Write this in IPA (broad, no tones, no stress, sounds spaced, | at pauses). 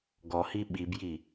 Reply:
ɡ ɔ h i ɓ i b j i